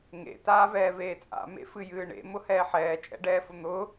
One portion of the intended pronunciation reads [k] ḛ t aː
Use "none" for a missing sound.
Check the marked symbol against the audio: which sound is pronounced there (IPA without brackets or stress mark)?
ŋ